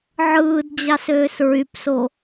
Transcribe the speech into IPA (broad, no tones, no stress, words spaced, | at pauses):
ʕɯːd d͡ʑɑsøːsɹypso